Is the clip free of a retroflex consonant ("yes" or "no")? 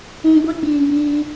yes